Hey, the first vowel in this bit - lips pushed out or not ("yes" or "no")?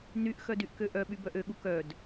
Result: yes